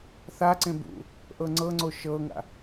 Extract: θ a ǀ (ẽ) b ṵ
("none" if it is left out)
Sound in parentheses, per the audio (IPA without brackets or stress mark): ẽ